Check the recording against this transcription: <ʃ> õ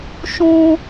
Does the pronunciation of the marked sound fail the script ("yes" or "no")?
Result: no